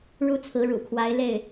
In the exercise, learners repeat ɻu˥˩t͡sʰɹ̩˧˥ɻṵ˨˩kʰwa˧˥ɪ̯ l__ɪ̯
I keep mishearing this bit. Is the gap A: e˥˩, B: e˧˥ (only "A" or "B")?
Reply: A